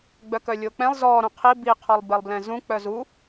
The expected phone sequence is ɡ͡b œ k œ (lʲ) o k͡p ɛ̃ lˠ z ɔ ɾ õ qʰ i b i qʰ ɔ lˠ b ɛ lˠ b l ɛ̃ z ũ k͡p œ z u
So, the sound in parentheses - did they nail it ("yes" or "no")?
yes